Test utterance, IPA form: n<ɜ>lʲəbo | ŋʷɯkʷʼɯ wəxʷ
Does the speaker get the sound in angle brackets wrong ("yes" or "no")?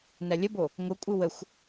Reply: no